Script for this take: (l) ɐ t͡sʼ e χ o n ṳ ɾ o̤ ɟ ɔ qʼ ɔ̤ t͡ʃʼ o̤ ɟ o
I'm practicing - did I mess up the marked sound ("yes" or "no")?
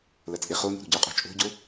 no